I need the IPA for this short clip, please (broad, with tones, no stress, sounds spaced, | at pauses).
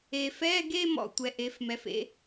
e˨ f ɛ˧˥˧ ɡ e˥˧ m ɔ̰˥˧ tʷ ɛ˩˥ ʔ e˩˥ f m ɛ˩˥ f ḛ˧˥˧